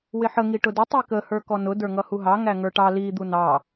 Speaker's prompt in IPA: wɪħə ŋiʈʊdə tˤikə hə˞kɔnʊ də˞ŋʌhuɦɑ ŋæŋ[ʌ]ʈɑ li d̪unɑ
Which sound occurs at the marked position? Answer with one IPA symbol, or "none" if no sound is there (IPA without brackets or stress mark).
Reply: ə˞